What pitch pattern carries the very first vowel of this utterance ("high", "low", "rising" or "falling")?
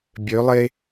rising